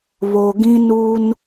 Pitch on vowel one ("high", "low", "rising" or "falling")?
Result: low